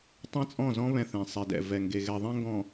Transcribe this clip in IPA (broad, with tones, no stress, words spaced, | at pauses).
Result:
tˤɛ̃˦t͡sʼɔ̃˦˨zɔ̃˦ βɛ̃˦θẽ˨ sˤe˨dɛ̰˨ vɛ˨ŋɡe˨ ɣɛ˨ðˤɛ̃˦ŋɡɔ̃˨